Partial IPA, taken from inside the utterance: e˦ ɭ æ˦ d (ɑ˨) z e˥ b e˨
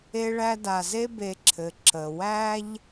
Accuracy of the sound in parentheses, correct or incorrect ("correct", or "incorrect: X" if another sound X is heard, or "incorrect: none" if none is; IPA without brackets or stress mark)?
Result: incorrect: a˨